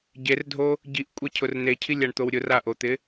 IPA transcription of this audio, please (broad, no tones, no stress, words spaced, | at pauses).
ɟerdʱo | ɟiʔkʷʼɛcʰʊr necʰilʲaɳt̪ow ɾʲʊraʔot̪ɪ